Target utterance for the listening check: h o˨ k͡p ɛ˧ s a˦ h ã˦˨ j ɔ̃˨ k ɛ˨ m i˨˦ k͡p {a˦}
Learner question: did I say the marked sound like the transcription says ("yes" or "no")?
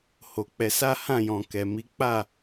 no